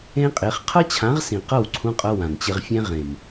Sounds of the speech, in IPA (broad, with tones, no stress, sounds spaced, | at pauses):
ẽ˦ qʼ e˨˦ χ qʰ ʌ˦ t͡ɕʰ ã˨˦ ʁ s ĩ˨ q ʌ˦˨ w ǀʰ ũ˧ qʼ ʌ˧ w ã˨ n t͡ɕ ɪ˧ ʁ fʲ ɛ̃˦ ʁ ẽ˨ m